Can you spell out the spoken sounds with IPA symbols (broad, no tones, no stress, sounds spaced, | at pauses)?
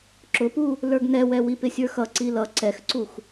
ǁ ʊ p u | l ə˞ ɡ n ɛ w ɛ w i p ɪ sʲ ə˞ x ʌ ǀ i l ʌ ǀ ɛ x ǀ u x